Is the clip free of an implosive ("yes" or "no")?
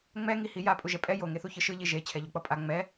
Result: yes